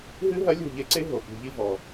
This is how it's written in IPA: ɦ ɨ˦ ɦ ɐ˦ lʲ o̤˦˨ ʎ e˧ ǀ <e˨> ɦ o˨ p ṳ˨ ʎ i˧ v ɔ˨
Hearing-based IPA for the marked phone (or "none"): e˦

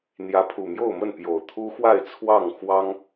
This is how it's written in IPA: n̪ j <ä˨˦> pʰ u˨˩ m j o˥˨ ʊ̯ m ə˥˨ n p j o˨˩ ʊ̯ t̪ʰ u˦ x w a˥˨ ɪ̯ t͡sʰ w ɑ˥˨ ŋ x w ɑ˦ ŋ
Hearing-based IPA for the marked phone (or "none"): ä˨˦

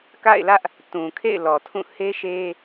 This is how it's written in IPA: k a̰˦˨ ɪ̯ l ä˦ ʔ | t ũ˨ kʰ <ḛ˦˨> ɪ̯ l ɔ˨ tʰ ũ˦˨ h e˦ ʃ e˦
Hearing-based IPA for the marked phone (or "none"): ḛ˦˨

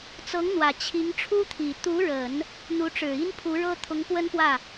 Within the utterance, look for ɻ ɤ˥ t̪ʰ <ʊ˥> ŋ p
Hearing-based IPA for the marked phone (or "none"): ʊ˧˥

